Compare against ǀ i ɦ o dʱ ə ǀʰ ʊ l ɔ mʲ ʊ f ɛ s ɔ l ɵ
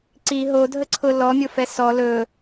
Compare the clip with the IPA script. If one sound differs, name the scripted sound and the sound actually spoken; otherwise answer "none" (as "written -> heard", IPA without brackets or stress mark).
none